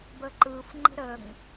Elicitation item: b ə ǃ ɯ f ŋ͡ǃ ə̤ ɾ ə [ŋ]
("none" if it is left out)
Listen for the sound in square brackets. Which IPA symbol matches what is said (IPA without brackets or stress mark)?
ŋ